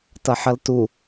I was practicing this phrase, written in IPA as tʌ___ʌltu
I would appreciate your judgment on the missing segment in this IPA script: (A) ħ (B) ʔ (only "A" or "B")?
A